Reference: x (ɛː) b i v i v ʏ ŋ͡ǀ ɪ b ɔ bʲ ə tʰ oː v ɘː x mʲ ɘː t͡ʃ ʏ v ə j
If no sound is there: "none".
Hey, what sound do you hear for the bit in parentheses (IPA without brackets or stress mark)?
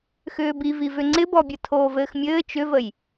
ʏː